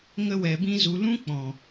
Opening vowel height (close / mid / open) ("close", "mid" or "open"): mid